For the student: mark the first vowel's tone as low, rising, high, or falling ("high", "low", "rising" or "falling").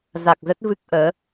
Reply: low